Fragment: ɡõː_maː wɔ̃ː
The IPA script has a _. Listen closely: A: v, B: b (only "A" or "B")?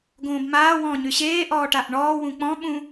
B